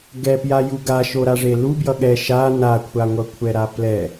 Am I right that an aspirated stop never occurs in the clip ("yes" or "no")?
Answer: no